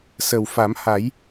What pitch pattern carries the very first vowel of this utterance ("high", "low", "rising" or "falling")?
low